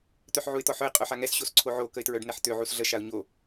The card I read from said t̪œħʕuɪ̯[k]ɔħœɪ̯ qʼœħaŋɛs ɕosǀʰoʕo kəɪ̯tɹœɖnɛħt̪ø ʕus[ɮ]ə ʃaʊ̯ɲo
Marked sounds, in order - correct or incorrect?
incorrect: t̪, correct

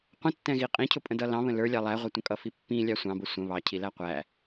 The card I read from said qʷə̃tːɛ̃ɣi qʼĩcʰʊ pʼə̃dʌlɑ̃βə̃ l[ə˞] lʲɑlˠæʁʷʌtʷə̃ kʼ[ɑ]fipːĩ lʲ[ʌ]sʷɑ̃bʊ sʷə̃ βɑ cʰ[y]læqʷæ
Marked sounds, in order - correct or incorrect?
correct, incorrect: ʌ, incorrect: ɑ, incorrect: i

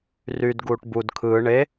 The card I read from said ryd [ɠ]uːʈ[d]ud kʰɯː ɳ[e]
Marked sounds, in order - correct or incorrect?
incorrect: ɡ, incorrect: b, correct

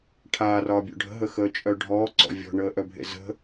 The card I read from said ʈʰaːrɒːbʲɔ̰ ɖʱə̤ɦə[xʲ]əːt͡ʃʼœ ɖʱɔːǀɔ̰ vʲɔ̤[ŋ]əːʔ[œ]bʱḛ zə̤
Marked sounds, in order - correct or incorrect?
incorrect: x, incorrect: ɳ, correct

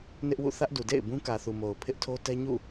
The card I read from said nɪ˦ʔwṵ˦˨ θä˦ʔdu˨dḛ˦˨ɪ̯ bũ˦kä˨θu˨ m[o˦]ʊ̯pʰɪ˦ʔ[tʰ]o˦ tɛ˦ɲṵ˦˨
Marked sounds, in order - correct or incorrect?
incorrect: o˨, correct

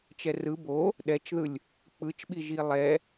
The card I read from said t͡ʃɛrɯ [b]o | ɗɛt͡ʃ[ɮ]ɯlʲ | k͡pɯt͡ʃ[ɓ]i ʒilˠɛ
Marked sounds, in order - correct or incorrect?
correct, incorrect: ð, correct

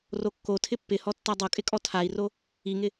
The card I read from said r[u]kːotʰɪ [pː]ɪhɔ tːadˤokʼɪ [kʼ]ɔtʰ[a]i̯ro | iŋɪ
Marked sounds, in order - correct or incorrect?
incorrect: o, correct, correct, correct

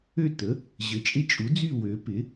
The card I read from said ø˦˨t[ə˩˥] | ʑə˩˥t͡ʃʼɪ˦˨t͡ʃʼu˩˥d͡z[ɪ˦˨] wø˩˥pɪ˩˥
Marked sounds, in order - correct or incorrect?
correct, incorrect: y˦˨

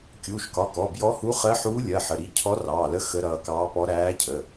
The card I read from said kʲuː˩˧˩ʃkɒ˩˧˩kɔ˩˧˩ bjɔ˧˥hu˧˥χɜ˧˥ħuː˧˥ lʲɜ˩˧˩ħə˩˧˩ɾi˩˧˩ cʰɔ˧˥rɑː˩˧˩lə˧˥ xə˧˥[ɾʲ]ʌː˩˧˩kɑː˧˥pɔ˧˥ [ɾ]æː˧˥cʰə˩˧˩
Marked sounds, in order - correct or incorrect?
incorrect: ɾ, correct

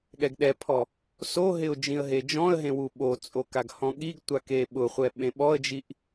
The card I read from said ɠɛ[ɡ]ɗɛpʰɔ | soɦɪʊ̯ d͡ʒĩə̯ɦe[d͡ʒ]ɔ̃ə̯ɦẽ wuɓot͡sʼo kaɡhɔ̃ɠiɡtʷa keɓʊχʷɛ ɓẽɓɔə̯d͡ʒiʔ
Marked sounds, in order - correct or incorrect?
correct, correct

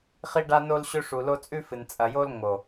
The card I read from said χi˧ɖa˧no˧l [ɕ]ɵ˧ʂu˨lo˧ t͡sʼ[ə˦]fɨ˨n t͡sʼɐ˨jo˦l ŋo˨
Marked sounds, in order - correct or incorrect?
correct, incorrect: ʉ˦

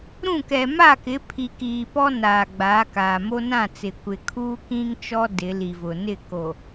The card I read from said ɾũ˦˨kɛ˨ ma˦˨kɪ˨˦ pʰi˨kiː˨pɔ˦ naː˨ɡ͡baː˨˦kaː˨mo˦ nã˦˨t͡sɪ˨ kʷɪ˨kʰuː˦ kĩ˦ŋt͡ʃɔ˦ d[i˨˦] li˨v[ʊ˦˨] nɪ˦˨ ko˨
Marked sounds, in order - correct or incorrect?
incorrect: ɪ˨˦, incorrect: ʊ˨

